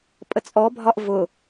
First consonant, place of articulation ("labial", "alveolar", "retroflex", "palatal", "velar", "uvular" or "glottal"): labial